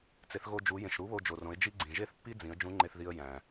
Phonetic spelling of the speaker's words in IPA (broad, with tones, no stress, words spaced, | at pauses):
t͡se˩˧θɣo˧d͡ʒu˩˧ jẽ˩ʃɾu˧˥βo˧d͡ʒo˩ rõ˩˧ɪ̯d͡ʒi˥ɡ͡ǀĩ˩ ʒe˥θpːi˥d͡zĩ˩˧ə̯ d͡ʒũ˧˥ŋ͡ǃe˧θði˧ə̯ jæ̃˩